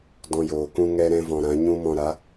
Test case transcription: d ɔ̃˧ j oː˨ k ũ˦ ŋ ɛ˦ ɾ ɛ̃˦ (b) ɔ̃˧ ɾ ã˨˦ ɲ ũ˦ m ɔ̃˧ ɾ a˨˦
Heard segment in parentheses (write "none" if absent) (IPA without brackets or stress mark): v